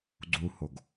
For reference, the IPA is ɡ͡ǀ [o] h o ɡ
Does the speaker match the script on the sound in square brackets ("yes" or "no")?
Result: no